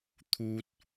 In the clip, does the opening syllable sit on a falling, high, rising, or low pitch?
high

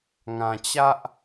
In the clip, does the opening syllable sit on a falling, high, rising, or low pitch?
low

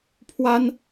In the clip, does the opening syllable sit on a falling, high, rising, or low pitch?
high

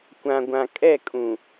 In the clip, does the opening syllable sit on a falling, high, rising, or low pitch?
low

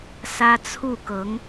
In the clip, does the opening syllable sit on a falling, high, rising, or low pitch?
high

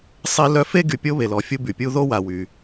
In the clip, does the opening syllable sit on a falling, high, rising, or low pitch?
high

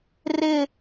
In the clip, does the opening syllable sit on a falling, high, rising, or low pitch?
high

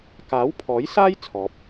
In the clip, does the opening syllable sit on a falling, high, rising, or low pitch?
rising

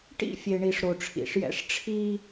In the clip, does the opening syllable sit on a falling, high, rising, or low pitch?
high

